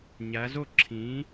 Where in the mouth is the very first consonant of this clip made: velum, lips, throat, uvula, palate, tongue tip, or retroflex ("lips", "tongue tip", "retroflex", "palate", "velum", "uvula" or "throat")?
palate